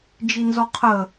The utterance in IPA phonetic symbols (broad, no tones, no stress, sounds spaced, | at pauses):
d͡ʒ i n z ɔ qʰ ə